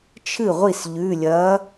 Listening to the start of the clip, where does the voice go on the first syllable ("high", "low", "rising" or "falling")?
falling